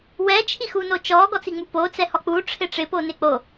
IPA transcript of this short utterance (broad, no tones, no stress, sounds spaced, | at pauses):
w ɛ t͡ʃʰ i x u n o t͡ʃ ɔ ɡ ɔ t͡s i ŋ͡m u p o t͡s ɛ h ɔ k͡p u ʈ͡ʂʰ ɪ ʈ͡ʂ ɪ p o n ɪ k͡p o